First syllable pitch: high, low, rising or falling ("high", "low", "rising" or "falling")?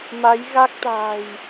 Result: rising